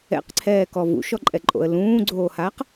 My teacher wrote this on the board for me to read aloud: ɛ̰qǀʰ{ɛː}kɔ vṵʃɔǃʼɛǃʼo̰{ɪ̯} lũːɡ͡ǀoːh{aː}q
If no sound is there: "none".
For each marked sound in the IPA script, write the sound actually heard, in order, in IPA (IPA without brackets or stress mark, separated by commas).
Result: ɛː, ə̯, aː